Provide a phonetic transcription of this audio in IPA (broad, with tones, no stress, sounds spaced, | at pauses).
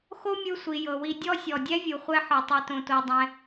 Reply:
x o˥ mʲ ɯ˧ sʷ i˩ j ɤ˩ w i˧ dʲ ɔ˥ sʲ ɔ˩ dʲ ɛ˥ vʲ u˩ χʷ ɛ˥ ħ ɯ˩ tˤ i˧ t õ˧ t o˧ dˤ ɛ̃˧